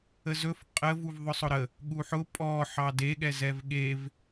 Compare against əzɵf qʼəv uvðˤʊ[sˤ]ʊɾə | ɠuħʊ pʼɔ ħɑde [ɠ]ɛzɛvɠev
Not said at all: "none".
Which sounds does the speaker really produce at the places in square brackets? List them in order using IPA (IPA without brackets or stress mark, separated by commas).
sˤ, ɠ